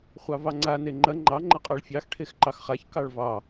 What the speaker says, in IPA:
χʷ ɑ v ɑ ŋ͡ǀ a n e ŋ͡ǃ ɐ ŋ͡ǃ ɑ ŋ͡ǃ ɐ qʼ ɑ ɭ fʲ ɑ x ʈʰ e x ǃ ɑ x χ a ç k ɑ ɭ v ɑ

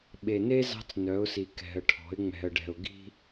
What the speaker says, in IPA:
ɓ e˨ n e˦ z ɑ̤˦ t͡s n œ˨˦ ʊ̯ s i˨ k ɛ̤˨ ə̯ ʈʰ ɔ̤˨˦ ɪ̯ ŋ͡m ɛ̤˨ ə̯ ɖ ɛ̤˨ ʊ̯ ɡ i̤˦

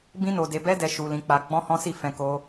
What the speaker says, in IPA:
b ĩ˦ n o˧ d e˧ b ɛ˦ d ɛ˧ ʃ u˧ l ĩ˧ k͡p a˧ ɡ͡b ɔ̃˦ h ɔ̃˦ s i˦˨ f ɛ̃˧ k o˦

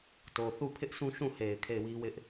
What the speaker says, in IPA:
t o˨ θ u˦˨ pʰ ɪ˦ ʔ s ũ˦ ʃ ũ˦˨ h e˨ ɪ̯ kʰ e˦˨ ɪ̯ w i˦ w ɪ˦ ʔ

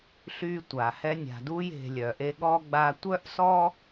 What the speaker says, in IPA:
ɬ y˦ tʷ a˩ h ɛ˦ nʲ a̤˨ d u˦ j e̤˨ lʲ œ˩ ʔ e˦ ɠ ɔ˥ ɡ͡b a˦ tʷ œ˥ ʔ s ɔ˥

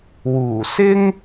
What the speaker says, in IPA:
w uː˨˩ s ɪ˥ ŋ

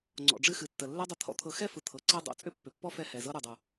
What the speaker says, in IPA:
ŋ͡ǀ ɔ̰˨ ɖ͡ʐ ɨ˧ x ɨ˨ tː ə˨ lː ɛ˦ dˤ ə˧ t̪ʰ ɔ̰˧ t̪ʰ ɤ˨ x ɛ˦˨ f ɯ˨ t̪ʰ ɤ˨ ǀ ɛ˧ dˤ o̰˨ t͡sʼ ʏ˦ pː ʏ˨ pː ɔ˦ f ɛ˧ h ɛ˨ z ɤ˦ ɾ u˨ dˤ u˨

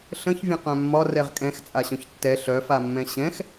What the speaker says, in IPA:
ɬ ə̃ ç vʲ ə̃ q œ̃ mː ɒ r ɛ ʁ kʼ ɛ̃ x t͡sʼ a ɕ œ̃ ç tː ɛ ɬ œ f a mː ɛ̃ ɕ ɛ̃ x

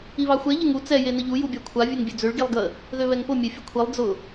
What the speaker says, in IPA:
i β ɑ xʷ ɛ ʎ ə ŋ u t͡s ɛ j e n ə ʎ u j u bʲ ɑ kʷʰ a vʲ ø ŋ bʲ ø d͡z ø ɭ ɡ i lˠ ɡ ə | ð ø β ɛ ŋ p ʊ mʲ e fʲ ə kʷʰ i lˠ d͡z ʊ

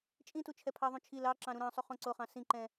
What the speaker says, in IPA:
t͡ʃʼ ĩ t u t͡ʃʰ ɛ pʰ ɑ ðˤ ũ t͡ʃʰ i l ɑ ǁ ɑ̃ ɾ ũ ɾ ɑ̃ sˤ y χ õ ǀ o χ ɑ̃ s ĩ ǃ ɛ̃

